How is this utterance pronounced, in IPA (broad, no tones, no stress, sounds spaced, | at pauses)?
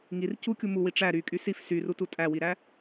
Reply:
ŋ i r c u kʲ u m u w i ʈ͡ʂ æ ɾ y kʼ y s i f s y r u t u tʼ æ w i ɾ æ